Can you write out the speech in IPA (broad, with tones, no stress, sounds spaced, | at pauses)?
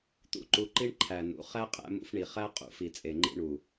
t̪ ṵ˦ ǃ u˧ ǃ i˦ ɳ ǃʰ æ˨ n ṵ˨˦ χ æ˦ qʼ æ̰˧ m ṵ˧ f ɳ i˨ χ æ˦ qʼ ṵ˧ f i˨ t͡sʼ e˨ ŋ͡ǃ ḭ˧ ɳ u˨